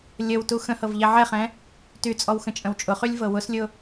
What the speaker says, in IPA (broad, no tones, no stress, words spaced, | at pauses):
lʲəwtu xə̃hɤv ʎɛʕɛχɛ̃ | tyt͡sʼɔw xə̃t͡ʃʼə̃wt͡ʃʼʊχylʲ vɤwʊslʲʊ